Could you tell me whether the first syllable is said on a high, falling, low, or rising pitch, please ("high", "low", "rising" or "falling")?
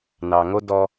low